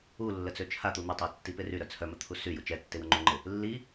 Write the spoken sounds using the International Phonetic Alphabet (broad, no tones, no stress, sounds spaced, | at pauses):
u lː ə t͡s ø t͡ʃʰ a t̪ u n̪ ɪ tˤ a tː i p ɪ r y ɾ œ t͡sʰ œ m ə t̪ʰ u s y j u t͡ʃ ɛ tː ɪ w ə ŋ͡ǃ u ŋ͡ǃ ɪ | lː i